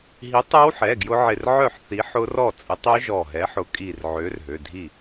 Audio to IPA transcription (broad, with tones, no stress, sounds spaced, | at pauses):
ɦ i˨˥ tˤ ɛ˦˥ w ħ ɛ˩˧˩ ɡ j ʊ˦˥ ʕ ɪ˧˩ r ʕ œ˥˩ ħ θ i˨˥ ħ ʊ˦˥ r ɔ˥˩ t͡sʼ ɪ˨˥ tˤ ø˦˥ ʒ ɔ˧˩ ɦ ɛ˨˥ ħ ʊ˨˥ kʼ i˧˩ r ʕ ø˨˥ r ɦ ø˩˧˩ dʱ i˥˩